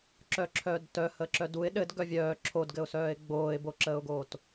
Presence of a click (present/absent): present